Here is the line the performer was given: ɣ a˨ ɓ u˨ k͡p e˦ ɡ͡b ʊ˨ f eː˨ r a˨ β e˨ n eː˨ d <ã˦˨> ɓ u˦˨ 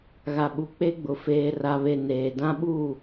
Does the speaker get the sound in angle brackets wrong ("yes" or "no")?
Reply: yes